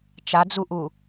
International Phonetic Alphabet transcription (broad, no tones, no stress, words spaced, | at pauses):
t͡ʃad͡zuʔu